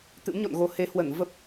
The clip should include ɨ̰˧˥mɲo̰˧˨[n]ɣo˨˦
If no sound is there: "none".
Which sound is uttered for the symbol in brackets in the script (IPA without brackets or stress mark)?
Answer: n